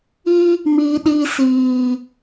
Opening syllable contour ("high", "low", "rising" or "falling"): high